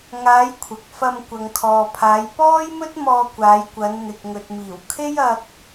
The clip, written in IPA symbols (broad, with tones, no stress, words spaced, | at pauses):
ŋaː˨˧j kʷʰɐ˨k̚fɐ˧m kʷɐ˨ŋkʰɔː˨pʰaː˨˧j pɔː˥jmɵ˥t̚mɔː˧ kʷaː˨˧jkʷɐ˨˧nn̪ɪ˨k̚ ŋɵ˨t̚miː˨˩w kʰe˥jɐ˧k̚